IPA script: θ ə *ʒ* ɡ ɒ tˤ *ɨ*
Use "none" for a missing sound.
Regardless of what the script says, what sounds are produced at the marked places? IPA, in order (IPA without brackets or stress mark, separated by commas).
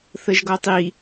ʒ, i